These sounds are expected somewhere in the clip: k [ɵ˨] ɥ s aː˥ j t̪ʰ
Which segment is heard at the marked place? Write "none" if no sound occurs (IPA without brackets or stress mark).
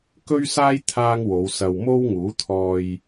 ɵ˥